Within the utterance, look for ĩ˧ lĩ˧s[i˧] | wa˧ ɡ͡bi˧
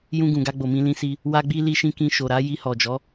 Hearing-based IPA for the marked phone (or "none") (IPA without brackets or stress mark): i˧